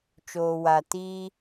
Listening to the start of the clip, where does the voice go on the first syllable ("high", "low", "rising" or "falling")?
low